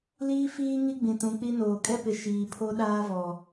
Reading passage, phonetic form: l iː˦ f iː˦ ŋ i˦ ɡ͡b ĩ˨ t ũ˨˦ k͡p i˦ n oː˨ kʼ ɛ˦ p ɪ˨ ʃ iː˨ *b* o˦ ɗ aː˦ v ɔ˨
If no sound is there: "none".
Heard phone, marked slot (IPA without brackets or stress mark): pʰ